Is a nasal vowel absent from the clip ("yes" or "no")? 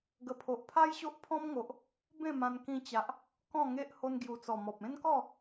no